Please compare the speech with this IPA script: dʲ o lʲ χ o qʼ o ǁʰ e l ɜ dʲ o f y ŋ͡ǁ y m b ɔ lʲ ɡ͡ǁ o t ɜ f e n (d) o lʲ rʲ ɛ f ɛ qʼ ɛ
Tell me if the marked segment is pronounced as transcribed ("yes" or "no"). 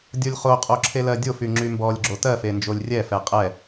no